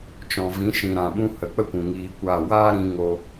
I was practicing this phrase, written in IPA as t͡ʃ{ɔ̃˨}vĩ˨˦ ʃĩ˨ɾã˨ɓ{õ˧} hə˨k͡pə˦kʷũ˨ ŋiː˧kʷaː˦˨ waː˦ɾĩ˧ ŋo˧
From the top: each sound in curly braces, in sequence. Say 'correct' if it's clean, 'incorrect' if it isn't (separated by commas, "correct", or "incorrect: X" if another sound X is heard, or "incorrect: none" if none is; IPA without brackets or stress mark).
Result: correct, incorrect: ũ˧